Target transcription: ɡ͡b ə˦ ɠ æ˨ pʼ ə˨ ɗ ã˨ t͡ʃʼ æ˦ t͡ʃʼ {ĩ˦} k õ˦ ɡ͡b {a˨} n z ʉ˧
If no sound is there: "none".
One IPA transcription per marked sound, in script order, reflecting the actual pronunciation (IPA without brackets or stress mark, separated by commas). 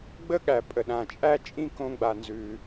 ĩ˦, a˧